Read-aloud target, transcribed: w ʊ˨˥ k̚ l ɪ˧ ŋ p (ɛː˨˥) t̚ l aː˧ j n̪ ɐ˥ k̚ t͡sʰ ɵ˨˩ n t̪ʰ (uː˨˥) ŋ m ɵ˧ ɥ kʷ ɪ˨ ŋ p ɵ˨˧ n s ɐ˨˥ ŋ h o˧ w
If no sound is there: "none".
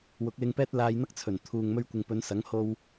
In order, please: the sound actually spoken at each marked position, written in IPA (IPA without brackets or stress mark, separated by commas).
ɛː˥, uː˨